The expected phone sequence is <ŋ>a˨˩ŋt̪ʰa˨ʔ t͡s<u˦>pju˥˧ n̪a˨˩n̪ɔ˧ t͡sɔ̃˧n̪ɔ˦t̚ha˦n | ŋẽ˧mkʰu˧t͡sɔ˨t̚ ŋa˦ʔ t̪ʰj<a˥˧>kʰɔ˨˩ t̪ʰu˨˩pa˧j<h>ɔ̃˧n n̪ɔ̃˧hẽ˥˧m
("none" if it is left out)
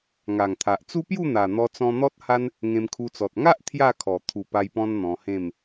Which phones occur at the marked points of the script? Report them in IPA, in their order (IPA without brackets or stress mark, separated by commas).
ŋ, u˦, a˥˧, p